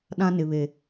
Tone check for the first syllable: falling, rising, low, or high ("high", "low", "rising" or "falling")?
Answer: high